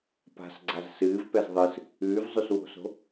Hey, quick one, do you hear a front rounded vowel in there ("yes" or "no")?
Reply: no